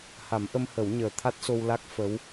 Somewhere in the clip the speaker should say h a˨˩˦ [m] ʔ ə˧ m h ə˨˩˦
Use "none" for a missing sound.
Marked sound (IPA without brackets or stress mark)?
m